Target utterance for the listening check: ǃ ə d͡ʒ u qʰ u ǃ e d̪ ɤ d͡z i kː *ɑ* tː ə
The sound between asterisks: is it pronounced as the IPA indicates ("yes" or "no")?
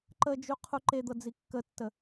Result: no